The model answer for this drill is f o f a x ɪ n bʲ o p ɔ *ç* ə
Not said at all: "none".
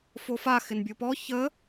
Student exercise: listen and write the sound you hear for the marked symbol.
ç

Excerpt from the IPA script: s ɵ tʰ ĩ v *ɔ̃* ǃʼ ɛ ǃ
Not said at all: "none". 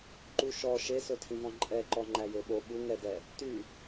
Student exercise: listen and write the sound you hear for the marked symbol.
ɔ̃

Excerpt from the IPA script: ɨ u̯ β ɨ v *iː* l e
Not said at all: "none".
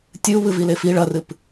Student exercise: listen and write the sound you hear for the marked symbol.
i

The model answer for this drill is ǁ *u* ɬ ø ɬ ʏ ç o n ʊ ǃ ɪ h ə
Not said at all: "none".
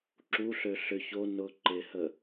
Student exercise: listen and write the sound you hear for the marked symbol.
u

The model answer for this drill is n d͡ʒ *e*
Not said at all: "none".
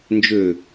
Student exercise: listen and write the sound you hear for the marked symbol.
ø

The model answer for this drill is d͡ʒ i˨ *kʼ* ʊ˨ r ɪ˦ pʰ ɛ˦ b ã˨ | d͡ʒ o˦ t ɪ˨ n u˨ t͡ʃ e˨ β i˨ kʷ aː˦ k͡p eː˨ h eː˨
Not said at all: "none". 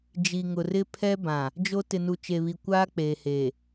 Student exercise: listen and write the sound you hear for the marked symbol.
ŋ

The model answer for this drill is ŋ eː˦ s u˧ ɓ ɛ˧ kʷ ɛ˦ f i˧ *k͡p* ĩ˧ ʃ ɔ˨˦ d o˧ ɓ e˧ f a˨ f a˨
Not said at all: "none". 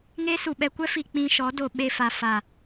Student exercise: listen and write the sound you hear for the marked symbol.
k͡p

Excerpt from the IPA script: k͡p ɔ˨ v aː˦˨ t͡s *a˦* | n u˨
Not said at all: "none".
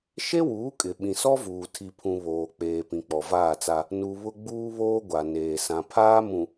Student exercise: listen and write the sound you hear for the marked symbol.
a˦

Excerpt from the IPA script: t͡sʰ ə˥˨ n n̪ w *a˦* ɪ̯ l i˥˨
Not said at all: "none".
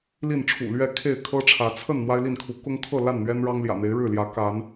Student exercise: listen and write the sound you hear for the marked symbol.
a˦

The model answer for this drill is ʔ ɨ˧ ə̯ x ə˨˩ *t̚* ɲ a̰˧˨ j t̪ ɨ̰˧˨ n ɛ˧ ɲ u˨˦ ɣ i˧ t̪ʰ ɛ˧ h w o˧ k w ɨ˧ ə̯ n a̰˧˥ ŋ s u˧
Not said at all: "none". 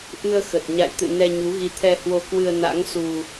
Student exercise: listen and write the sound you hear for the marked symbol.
t̚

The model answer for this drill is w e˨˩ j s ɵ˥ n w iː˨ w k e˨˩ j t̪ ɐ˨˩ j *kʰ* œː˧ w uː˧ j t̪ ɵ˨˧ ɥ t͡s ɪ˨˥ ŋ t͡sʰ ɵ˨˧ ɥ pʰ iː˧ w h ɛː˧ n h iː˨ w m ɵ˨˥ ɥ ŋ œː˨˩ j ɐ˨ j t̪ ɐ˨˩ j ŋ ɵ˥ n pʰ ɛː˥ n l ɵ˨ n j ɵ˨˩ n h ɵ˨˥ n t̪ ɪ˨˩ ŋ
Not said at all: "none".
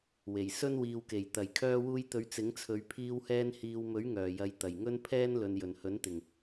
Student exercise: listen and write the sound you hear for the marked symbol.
kʰ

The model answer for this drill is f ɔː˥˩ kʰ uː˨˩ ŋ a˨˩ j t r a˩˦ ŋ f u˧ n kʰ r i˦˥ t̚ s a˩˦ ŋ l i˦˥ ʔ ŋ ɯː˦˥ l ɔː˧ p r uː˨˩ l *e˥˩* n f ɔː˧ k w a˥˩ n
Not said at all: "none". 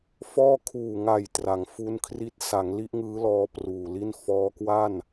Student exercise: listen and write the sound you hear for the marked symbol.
i˥˩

